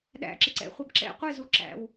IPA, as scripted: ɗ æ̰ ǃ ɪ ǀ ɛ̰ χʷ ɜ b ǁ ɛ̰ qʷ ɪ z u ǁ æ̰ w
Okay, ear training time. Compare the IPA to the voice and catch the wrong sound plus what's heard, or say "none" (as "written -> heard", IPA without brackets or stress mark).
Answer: ǃ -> ǁ